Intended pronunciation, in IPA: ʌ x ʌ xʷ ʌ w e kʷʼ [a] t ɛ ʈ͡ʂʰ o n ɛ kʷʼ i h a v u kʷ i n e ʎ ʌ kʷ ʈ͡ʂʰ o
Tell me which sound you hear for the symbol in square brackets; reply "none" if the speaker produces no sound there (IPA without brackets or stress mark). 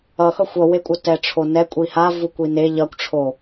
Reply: ʌ